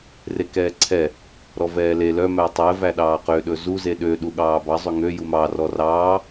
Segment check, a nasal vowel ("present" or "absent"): absent